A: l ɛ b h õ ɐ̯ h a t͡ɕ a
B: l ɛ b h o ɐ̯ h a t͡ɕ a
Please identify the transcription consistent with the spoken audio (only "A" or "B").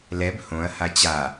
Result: A